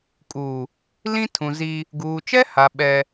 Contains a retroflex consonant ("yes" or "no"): no